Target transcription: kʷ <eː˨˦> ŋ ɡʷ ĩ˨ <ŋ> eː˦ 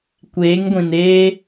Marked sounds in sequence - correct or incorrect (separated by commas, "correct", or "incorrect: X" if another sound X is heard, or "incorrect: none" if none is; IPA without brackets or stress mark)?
correct, incorrect: n